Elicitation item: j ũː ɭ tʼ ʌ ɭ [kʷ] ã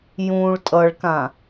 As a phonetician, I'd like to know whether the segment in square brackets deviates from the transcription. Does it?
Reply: yes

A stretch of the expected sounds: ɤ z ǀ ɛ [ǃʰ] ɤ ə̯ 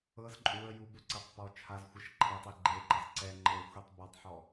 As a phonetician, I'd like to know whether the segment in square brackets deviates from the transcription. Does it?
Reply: yes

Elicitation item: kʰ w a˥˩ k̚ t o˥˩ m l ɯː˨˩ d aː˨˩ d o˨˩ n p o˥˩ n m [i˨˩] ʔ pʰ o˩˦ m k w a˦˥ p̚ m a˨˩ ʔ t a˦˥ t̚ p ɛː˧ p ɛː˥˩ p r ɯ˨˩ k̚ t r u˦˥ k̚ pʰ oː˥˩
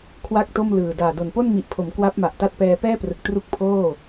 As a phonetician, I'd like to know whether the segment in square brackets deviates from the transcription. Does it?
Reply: no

